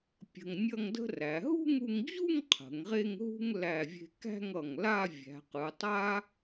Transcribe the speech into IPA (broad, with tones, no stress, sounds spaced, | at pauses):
pʲ ə̤˧ ŋ nʲ ʌ˥˧ ŋ d ə̤˥ r æ˩˧ ɦ ṳ˥˧ ŋ u˧ ŋ d͡ʑ u˥˧ ŋ qʰ ə̤˩˧ ŋ ʁ e˥˧ ŋ ɦ ṳ˥ ŋ l æ˧˩ vʲ e̤˧ k æ̤˥˧ ŋ ʌ˧˩ ŋ l a˥˧ vʲ æ̤˩˧ q ɯ˩˧ tˤ a˥